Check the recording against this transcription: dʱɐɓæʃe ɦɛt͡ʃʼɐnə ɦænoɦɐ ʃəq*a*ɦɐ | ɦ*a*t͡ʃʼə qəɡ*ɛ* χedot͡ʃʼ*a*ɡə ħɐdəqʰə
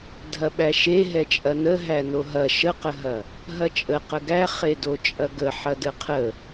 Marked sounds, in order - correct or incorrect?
incorrect, incorrect, incorrect, incorrect

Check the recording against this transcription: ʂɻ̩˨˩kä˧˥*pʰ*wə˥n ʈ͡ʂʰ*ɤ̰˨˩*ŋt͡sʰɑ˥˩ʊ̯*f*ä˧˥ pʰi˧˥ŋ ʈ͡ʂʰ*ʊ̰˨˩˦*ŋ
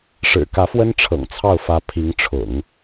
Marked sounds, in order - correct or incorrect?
incorrect, correct, correct, correct

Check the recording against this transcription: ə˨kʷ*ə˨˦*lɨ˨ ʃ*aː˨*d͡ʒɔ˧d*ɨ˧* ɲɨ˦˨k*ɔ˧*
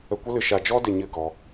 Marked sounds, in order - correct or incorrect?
incorrect, incorrect, incorrect, correct

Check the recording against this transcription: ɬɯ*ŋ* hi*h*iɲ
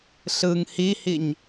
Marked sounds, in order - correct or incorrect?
correct, correct

